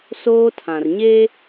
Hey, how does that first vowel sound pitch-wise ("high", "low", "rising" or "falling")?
high